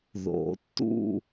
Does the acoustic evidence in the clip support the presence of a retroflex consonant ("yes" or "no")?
no